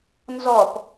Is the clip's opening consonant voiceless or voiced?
voiced